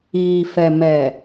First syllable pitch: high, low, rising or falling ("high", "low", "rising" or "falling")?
low